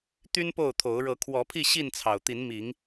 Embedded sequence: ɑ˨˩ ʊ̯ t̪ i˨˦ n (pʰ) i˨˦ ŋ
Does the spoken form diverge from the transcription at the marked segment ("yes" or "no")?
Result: yes